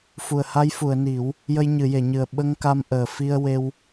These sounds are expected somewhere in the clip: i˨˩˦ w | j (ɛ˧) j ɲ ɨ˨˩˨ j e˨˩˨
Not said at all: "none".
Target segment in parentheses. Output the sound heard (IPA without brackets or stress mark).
ə˧